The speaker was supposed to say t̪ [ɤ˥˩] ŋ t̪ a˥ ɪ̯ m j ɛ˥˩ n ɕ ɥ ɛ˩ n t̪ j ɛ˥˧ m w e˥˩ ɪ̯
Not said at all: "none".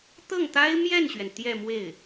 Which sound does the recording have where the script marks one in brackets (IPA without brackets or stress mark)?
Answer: ɤ˥˩